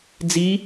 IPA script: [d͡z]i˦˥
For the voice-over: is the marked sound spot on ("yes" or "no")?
yes